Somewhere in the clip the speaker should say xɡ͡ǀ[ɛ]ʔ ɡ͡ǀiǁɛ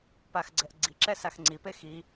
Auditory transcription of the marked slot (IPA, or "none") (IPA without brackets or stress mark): ɛ